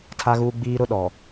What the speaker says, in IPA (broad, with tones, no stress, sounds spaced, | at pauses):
tʰ a˦ ɣ uː˦ ɡ͡b iː˦ ɾ ʊ˦ ɗ ɔ˨